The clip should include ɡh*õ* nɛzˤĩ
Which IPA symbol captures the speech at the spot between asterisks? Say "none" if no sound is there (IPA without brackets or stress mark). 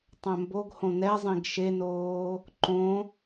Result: õ